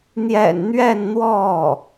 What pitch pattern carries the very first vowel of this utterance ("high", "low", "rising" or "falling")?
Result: low